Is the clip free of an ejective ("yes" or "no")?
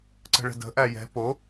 yes